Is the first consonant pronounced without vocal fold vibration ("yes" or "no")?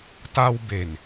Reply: yes